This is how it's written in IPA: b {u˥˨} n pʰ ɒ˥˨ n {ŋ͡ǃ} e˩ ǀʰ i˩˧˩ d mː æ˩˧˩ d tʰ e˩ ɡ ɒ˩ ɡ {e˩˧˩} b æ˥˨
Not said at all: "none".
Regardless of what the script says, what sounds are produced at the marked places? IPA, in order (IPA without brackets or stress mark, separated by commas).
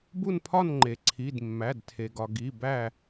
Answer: u˥˨, ŋ͡ǃ, i˩˧˩